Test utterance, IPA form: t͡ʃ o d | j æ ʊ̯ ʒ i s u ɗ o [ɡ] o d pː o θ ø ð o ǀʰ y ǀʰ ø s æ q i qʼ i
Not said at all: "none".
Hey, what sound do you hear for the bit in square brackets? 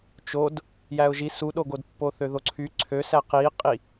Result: ɡ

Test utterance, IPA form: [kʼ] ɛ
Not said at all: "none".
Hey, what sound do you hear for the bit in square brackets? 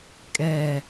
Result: kʼ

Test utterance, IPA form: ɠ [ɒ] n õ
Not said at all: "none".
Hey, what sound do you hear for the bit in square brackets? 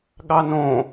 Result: ɑ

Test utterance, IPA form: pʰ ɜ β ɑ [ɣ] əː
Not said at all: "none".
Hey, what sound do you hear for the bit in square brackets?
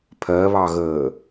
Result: ɣ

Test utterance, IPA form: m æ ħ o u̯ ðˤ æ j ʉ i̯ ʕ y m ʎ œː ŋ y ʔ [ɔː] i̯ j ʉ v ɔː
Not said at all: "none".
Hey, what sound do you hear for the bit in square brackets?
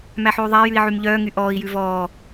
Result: ɔː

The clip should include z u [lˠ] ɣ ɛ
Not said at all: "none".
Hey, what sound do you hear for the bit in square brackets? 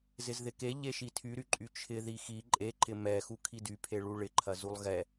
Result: lˠ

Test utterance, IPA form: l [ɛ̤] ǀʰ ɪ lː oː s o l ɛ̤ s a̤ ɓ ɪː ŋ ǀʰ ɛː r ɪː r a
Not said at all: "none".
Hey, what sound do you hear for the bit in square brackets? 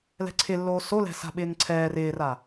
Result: ɛ̤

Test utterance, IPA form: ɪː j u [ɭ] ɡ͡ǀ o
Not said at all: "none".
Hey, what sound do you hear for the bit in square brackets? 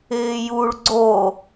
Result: ɭ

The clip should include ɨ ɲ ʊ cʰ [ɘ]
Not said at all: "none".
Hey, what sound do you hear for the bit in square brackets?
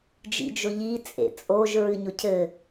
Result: ɘ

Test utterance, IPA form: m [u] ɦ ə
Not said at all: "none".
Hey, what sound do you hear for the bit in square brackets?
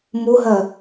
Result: u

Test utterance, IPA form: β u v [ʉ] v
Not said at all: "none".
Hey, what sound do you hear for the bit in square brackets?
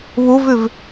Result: ʉ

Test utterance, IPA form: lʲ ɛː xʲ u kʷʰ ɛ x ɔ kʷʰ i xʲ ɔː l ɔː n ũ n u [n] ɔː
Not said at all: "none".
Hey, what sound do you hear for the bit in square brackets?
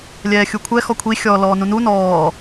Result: n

